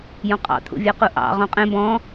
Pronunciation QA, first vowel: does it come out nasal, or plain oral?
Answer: nasal